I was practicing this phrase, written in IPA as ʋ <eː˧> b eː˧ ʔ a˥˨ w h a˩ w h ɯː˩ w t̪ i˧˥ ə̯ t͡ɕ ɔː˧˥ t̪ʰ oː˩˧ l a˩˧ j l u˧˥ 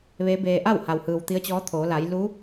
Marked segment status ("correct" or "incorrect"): incorrect